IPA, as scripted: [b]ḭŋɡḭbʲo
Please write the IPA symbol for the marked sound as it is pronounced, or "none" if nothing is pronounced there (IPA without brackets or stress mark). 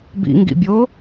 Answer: b